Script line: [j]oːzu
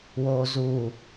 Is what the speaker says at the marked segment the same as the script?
no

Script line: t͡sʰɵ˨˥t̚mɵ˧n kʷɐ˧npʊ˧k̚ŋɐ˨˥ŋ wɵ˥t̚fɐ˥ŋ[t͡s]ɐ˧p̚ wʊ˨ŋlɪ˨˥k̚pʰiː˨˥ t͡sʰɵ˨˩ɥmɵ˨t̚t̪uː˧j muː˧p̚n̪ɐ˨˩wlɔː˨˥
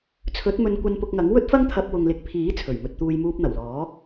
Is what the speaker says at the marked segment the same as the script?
no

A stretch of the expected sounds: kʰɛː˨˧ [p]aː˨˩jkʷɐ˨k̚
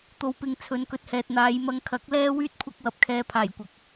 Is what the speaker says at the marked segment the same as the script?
no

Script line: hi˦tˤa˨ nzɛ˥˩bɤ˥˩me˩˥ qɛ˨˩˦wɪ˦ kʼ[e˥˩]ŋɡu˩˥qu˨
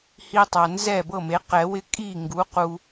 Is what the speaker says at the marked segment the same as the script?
no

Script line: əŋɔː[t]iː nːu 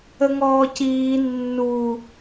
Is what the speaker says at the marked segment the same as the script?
no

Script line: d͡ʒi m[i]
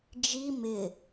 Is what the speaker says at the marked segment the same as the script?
no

